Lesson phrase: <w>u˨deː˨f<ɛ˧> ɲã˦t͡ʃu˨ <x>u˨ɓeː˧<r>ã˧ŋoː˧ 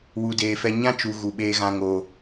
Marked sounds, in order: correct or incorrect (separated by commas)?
correct, correct, incorrect, incorrect